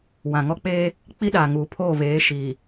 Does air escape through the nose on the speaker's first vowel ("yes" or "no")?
yes